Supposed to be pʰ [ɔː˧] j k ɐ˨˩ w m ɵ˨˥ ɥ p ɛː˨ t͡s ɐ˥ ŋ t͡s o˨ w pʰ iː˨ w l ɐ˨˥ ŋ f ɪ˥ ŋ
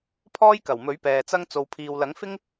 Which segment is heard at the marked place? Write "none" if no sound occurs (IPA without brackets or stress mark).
ɔː˥